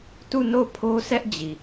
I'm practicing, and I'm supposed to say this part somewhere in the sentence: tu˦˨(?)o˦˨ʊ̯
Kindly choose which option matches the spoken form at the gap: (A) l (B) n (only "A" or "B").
B